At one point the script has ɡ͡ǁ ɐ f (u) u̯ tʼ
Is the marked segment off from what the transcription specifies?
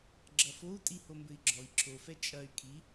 yes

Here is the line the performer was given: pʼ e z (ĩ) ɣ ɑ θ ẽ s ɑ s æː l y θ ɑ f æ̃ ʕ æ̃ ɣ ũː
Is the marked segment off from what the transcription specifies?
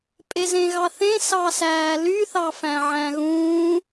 yes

